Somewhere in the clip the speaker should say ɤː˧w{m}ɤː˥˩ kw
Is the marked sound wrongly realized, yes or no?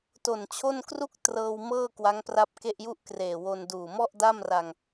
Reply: no